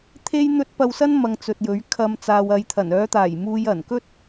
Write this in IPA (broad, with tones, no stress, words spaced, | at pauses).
t̪ʰe˥jn̪ɵ˥t̚ pɐ˧wsɐ˥n mɐ˧ŋt͡sɵ˨t̚jɵ˨˥ɥkʰɐ˧m t͡saː˨wɐ˨˧jt̪ʰɐ˨˩n œː˨˧t̪aː˨˩jmuː˨j ɐ˨˩nkɵ˥t̚